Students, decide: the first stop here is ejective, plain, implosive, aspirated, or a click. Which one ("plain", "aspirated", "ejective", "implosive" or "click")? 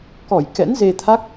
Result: plain